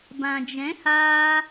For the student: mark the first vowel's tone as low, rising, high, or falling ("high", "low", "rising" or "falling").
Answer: low